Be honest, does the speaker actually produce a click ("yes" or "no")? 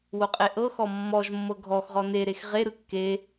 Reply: no